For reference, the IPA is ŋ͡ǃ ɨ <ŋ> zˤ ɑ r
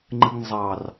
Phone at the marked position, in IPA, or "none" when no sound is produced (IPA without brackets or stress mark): ŋ